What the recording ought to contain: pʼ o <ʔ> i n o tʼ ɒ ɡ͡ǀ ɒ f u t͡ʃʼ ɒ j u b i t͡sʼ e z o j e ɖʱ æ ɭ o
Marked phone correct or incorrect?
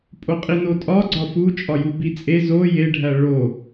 incorrect